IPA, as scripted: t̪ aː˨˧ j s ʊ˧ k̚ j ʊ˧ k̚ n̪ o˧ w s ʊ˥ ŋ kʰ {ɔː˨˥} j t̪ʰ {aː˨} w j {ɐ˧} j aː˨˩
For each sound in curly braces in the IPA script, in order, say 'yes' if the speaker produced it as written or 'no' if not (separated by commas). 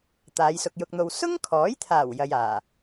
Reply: yes, no, yes